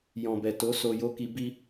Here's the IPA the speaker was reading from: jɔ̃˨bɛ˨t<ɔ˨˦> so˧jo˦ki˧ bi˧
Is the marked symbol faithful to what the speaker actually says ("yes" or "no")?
no